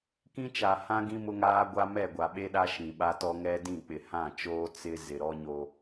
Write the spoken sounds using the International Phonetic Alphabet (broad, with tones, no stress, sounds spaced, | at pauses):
k ĩ˦ t͡ʃ a˨ h ã˦ ɡ ĩ˦ m ʊ˦ ŋ aː˦ ɡʷ a˦ m ɛ˦˨ ɡʷ a˨ ɓ e˦ ɗ a˦ ʃ ĩ˨ ɓ a˦ t ɔ˦ ŋ ɛ˦ d ĩ˦˨ k͡p ɪ˨ h ã˦˨ t͡ʃ oː˦ t͡s ɪ˦ z ɪ˨ ɾ ɔ˦ ɲ o˦